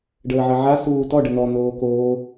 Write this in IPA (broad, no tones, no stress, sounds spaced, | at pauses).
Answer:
ɖ əː ʕ ə ʕ a s uː t ɔ ɖ ə n̪ ɔ n̪ oː k o